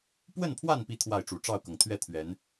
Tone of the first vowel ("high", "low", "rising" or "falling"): falling